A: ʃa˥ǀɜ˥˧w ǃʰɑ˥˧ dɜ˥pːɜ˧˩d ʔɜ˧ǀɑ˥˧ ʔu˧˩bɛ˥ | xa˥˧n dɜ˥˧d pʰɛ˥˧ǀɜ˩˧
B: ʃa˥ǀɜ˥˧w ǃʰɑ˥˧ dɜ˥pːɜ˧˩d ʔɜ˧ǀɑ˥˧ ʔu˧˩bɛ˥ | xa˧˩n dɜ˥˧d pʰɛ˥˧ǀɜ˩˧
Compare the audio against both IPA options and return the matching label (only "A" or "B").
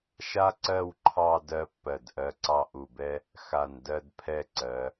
B